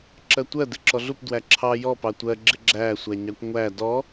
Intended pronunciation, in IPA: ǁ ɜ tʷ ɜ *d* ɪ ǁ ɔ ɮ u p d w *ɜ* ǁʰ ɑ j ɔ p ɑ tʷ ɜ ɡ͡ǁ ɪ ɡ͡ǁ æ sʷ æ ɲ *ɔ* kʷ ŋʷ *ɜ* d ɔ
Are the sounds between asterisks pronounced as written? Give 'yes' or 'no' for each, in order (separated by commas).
yes, no, no, no